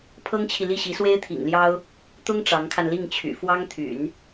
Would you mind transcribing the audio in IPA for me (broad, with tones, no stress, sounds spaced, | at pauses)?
pʰ ɤ˥ ŋ t͡ɕʰ i˨ l i˥˩ ɕ i˧˥ s w e˥ ɪ̯ t̪ʰ ḭ˨˩ ŋ l j ɑ˥ ʊ̯ | t̪ ʊ˥ ŋ ʈ͡ʂ ɑ˧˥ ŋ kʰ a˧ n l i˥˩ ŋ t͡ɕʰ y̰˨˩ f w ɑ˥ ŋ t̪ʰ y̰˨˩˦ n